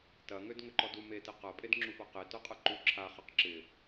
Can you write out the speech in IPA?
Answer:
tɐŋød ŋʏǃɔdu metɪ qɐ pʼedŋ͡ǁufaqe tœqʼɐǃu ǁʰa χəq ǁɪ

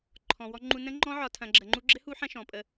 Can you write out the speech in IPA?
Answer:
ǃʰɔ̃˨wɔ˧ ŋ͡ǃu˧nə̃˦ŋ͡ǃɔ̃˦ʕɒ˧ tʰɐ̃˧ɡ͡ǁə˧ŋ͡ǃu˦ ɡ͡ǁɘ˦ hu˦ħɐ̃˦ʃɔ̃˨pʼə˧

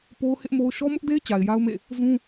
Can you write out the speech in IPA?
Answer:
po˦ʊ̯hɪ˦ʔmo˦ʊ̯ ʃɔ˦mʊ˦ʔde˦ɪ̯ t͡ɕa˨ɪ̯ja˦ʊ̯mḛ˦˨ | zũ˦

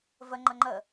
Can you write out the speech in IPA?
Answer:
vəŋ͡ǃə ŋ͡ǃə

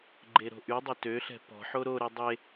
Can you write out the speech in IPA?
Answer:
ɡ͡ǃeɾo̤ʔydˤʏ tøɬɛ̤ pɔ̤ħo ɾoɾe dˤe

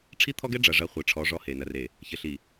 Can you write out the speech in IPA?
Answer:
ʈ͡ʂʰi˦t̪ʰɔ˦ɡɛ˦ ɖ͡ʐɐ˨ʐɐ˨˦ χʷɛ˨ʈ͡ʂʰɔ˨˦ ʐɔ˦he˨ nɐ˨re˨ | çɘ˨ɬi˨

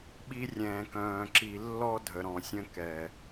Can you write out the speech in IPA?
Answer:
ɓi˧rʲɛ̃ː˨kœ̃ː˨ ǁi˨lːɔ˧ dʱə˨ɾɔ̃˨sʲə̃˧kɛ˨

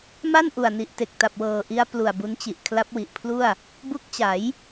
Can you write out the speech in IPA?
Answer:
ma˥˩n ʔu˨˩a̯ni˨˩ʔte˨˩k̚ ta˨˩p̚wɤː˨˩ʔi˦˥a̯ plu˨˩a̯bu˦˥nt͡ɕi˨˩ʔ kʰla˦˥p̚wi˨˩ʔpʰlu˥˩a̯ | bu˦˥k̚t͡ɕa˩˦j

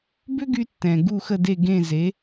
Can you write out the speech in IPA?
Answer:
bʏ˥ɡy˧ tːɛ̃˩ ɡu˥˩xə˥˩de˥˩ ɡẽ˥˩ze˩˥

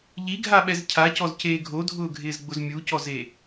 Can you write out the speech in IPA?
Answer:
ʎiɡʱaɓɛz cʰacɔzceː ɡʱodʱʊːɡʱɪːzɡ͡bʊz mʲucɔze

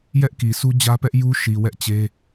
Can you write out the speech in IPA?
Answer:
jɛ˦ʔki˨sʰu˦ d͡ʑä˦pɛ˦ʔju˦ ʃi˨ wɛ˦ʔt͡ɕe˦

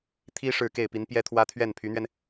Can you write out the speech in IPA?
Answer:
t̪ʰi˥ ʂɻ̩˥˧ke˥˩ɪ̯pi˧˥npjɛ˥ t̪ʰwä˥t̪ʰɥɛ˥˩npʰy˧˥n̪ɥɛ˧n

